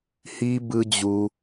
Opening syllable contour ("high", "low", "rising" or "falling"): low